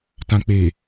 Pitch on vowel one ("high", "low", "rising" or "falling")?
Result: low